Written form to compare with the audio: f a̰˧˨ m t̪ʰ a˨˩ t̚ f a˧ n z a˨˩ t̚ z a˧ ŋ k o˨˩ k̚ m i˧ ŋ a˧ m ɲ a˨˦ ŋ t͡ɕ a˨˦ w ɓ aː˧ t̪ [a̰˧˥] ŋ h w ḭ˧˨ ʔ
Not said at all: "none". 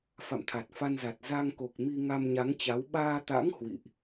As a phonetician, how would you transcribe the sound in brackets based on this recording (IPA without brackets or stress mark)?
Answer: a̰˧˥